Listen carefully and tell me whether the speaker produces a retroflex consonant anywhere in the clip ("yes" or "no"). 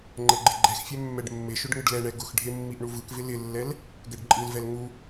yes